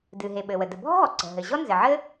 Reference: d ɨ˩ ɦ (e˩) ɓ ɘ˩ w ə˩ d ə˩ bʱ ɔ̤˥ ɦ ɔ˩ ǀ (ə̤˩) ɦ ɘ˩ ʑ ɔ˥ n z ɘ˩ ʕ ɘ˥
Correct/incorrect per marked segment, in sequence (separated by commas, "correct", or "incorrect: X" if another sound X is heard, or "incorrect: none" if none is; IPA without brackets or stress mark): correct, correct